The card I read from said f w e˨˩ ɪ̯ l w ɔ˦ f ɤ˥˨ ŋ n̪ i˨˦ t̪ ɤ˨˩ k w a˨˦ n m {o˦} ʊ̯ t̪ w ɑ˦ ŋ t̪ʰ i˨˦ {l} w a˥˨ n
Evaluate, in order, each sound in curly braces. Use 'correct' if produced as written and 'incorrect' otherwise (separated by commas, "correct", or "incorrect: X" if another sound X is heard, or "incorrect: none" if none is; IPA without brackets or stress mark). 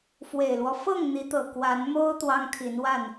correct, incorrect: n